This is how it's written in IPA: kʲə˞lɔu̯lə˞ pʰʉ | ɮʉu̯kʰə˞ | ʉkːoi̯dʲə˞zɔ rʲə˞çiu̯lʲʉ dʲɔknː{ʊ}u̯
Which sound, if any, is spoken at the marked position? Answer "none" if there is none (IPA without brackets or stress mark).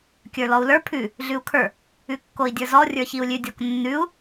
ʉ